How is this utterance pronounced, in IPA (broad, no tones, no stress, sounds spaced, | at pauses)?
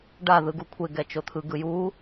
ɖ a ð ɯ ɡ u kʷʰ e ɡ ɛ t͡ʃ o t̪ʰ ɯ ɡ ɯ j u